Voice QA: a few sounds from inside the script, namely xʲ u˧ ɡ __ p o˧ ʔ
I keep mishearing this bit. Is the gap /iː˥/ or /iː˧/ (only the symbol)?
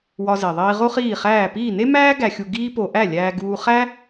iː˥